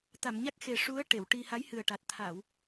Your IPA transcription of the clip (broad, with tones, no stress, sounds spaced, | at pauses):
t̪ a˨˩˨ m ɲ a˦˥ k̚ x e˨˩ ʂ u˧˥ ə̯ ʈ e˨˩˨ w ʈ i˧ h a˧˥ j h ɨ˨˩ ə̯ ʈ a˨˩ t̚ t̪ʰ a˨˩˨ w